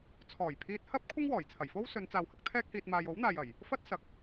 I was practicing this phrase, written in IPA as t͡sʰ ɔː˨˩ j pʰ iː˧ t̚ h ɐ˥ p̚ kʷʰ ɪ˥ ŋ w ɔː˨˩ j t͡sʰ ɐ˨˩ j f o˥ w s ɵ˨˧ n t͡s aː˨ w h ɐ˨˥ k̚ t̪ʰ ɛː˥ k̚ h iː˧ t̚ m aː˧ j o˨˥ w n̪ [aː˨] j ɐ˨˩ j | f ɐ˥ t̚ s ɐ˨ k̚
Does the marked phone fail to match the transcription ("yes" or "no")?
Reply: no